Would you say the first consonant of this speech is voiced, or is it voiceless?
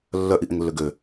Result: voiced